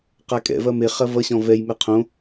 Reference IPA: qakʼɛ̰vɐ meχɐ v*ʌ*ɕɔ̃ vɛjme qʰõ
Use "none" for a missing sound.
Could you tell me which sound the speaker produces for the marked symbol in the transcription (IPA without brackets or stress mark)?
ʌ